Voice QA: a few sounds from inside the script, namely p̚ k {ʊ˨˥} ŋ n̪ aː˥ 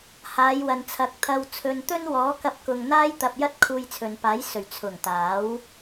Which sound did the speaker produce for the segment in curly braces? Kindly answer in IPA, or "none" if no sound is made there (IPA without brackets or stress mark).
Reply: ʊ˨